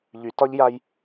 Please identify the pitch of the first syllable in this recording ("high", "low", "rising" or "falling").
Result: low